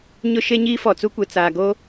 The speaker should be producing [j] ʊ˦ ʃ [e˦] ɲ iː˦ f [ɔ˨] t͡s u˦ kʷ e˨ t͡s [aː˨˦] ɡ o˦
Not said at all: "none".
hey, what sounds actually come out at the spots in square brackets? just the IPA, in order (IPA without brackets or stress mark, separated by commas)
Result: ɲ, e˦, ɔ˨, aː˨